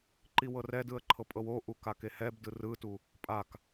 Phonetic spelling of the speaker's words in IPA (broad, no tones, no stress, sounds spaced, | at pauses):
ǃ i w ɤ r ɛ d ɯ ə̯ ǃʰ ɤ pʼ ɤ w o ʔ u k a k e h ɛ b d ɯ r ɯ t u | pʼ a k